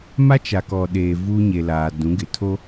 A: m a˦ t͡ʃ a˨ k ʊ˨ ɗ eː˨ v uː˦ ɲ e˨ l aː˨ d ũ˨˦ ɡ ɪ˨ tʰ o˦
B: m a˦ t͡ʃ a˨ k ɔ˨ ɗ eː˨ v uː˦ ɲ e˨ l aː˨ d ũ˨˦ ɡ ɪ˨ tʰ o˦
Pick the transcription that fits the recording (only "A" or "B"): B